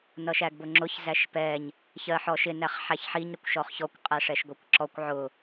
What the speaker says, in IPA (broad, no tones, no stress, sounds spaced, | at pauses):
n ʌ ʃ æ ɡ b ʊ ŋ͡ǁ ʊ ç z æ ʃ p ɛ ɲ | ç ɜ ħ ɔ ʃ ɪ n æ χ ħ æ ç ħ i ɲ ɾ ʌ kʷ ʃ ɔ χ ç ɔ kʷ qʼ æ ʂ ɛ ʃ ɡʷ ɜ kʷ ǁ ɔ kʷ ʕ ʊ